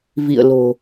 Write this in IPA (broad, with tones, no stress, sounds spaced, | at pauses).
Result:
v ḭ˧˨ ə̯ l o̤˨˩